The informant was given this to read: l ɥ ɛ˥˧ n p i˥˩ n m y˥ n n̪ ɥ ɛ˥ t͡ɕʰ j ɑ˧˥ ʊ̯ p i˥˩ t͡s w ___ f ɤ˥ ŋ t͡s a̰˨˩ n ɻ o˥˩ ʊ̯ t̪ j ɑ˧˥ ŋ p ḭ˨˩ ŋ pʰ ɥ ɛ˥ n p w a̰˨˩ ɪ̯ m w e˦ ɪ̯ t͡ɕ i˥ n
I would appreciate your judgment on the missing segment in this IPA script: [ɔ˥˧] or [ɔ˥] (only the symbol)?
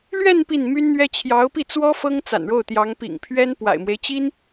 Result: ɔ˥